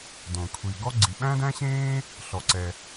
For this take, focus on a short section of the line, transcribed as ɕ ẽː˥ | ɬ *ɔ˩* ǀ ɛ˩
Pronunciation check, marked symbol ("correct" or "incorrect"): correct